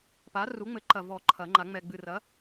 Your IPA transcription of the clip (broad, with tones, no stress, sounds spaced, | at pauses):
p a˨˥ r u˨˥ ŋ͡m ɘ˨˥ ǃ ɐ˨ v ɔ˨˩˦ ǃʰ ɐ˨˩˦ ŋ͡ǃ a˨˩˦ ŋ͡m ɛ˨ ɡ͡b ɨ˨ r ɐ˨˥